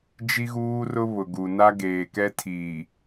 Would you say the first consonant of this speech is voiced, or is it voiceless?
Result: voiced